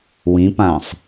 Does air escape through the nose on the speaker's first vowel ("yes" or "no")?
yes